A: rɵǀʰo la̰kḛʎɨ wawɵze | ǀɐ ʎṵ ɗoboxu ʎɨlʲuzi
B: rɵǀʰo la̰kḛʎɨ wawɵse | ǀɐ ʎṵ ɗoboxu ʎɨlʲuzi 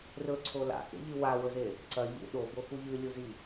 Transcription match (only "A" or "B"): A